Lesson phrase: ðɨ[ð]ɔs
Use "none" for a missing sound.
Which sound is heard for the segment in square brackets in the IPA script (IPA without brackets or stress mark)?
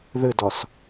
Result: d